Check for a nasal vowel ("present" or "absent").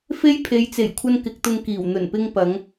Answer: absent